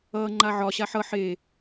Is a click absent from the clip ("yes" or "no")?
no